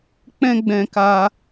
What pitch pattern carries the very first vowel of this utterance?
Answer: high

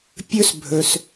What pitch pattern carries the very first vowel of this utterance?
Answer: high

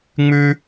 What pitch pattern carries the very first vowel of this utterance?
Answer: high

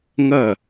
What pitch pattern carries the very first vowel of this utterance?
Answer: falling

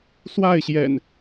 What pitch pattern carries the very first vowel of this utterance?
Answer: falling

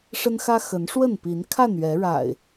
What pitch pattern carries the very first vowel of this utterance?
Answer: high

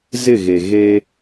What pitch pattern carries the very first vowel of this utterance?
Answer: falling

